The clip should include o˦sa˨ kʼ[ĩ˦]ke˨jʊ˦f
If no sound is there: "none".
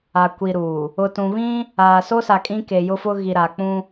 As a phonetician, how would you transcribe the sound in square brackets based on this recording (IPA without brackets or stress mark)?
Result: ĩ˦